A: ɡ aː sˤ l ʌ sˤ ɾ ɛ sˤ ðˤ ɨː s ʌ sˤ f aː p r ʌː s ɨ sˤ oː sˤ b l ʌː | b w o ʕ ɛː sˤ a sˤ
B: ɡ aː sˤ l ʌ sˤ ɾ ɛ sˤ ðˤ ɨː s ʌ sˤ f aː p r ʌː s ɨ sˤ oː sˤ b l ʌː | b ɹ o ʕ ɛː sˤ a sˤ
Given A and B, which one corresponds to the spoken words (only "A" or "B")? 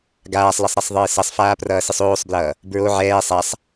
B